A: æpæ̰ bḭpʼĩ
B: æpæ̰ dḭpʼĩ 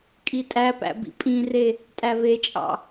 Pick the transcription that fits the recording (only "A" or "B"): A